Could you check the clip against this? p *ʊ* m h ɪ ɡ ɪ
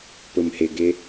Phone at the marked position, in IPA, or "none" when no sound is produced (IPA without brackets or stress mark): ʊ